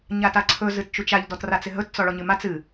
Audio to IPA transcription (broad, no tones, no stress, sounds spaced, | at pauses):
ɲ a t a ǀʰ ɵ z ɨ t t͡ʃ u t͡ʃ a ʎ d ɔ t r a t͡s ɪ ɦ ɵ t t͡s ɔ ɭ ɔ ɲ ɨ m a t͡s ɨ